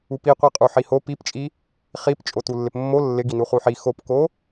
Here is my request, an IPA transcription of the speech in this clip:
upiqʷi qʼuħiho pipt͡ʃʼi | χip t͡ʃʼotulːɪpmːo lːɪ ɡinuχuħi xopko

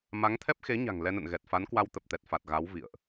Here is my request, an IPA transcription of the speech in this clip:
ma˨˦ŋt̪ʰɛ˦˥p̚xe˨˦ɲa̤˨˩ŋ lɛ˧nə̰˧˨nɣɛ˨˩t̚fa˨˦n kwa˧wt̪ə˨˩p̚t̪ɛ˨˩t̚fa˨˩t̚ ɣa˨˦wvḭ˧˨ə̯ʔ

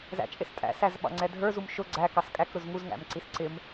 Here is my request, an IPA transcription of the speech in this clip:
zæ̰t͡ʃʼɪstʼæ̰ sæzɓɑ̰ŋ͡ǀɛdʱə˞ zumʃʊ ɡ͡ǀækɑs kʼækɾʊz ŋuzŋæ̰mǀis ǀɪm

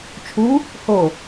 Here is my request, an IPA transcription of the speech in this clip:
t͡ʃʰu | ho

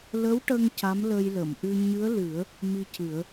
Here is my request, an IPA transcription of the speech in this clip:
lə˧˥wʈə˧ŋ ca˧˥mlə˧jlə˨˩˨mʔɨ˧ ɲɨ˧˥ə̯lɨ˨˩˦ə̯ | mi˧cɨ˨˩˦ə̯

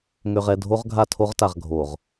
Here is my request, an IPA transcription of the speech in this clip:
ŋø˨ʁ ɛ˦˨ dʱo˦ʁɡʱa˦˨tʰo˦ʁta˨ʁ ɡʱo˨ʁ

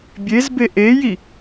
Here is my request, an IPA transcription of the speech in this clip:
bʲezbe ʔeji

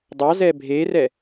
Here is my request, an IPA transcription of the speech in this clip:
dˤɑzɛ bʱerɛ

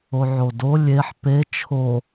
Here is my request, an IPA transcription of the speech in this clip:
oʕodo lʲeħ pe t͡ʃʰo

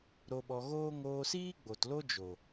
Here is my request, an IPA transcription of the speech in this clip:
ɾo˧ɓɔ˧ɣoː˦ ŋoː˧siː˦ɡ͡bo˨t lo˦d͡ʒo˨

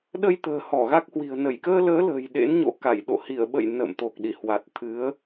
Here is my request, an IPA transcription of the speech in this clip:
ɗə˧jt̪ə̤ː˨˩ hɔ˧˩ɣa˦˥k̚hwi̤˨˩ə̯ nə˧˩jkəː˧ ləː˨˦lə̤ː˨˩j ɗḛ˧˥nɲo̰˧˥ka˧˩jɗo̰˧˨ hi˧˩ə̯ɓə̰˧˨j nə̰ː˧˨mt̪o˨˩k̚ɗi˧˩hwa˨˩t̚ t̪ʰɨ˨˦ə̯

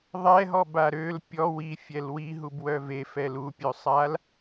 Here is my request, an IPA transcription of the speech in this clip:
ðˤɛɦɔba ɾøl pʲɔ wifʲɛl wiɦubwœ vefɛl upʲøsˤal

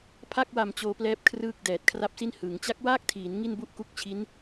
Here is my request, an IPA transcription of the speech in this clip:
pʰa˥˩k̚ wa˨˩m t͡ɕoː˧plɛː˦˥p̚ kʰrɯː˥˩k̚dɛː˨˩t̚kʰra˥˩p̚si˥˩n hɯ˩˦ŋ t͡ɕa˦˥k̚waː˥˩k̚tʰiː˩˦n ŋi˥˩nbu˥˩ʔku˥˩k̚t͡ɕʰi˦˥n

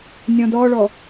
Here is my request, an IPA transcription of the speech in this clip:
nʲɔ̃dɔɭɔ

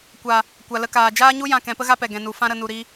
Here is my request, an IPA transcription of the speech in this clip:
kʷa˨ | kʷa˨lə˧kaː˨ d͡ʒaː˦ɲu˦jã˧ kɛ̃˨˦pə˦ɣa˦pɛ˨ ɡɛ̃˨nu˨ fã˦ɾə˧ nu˨ɾi˧

